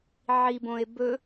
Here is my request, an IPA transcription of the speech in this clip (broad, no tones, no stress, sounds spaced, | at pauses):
ʕ i b õ e̯ b ɵ